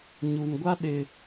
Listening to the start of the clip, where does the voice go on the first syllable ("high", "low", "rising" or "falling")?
low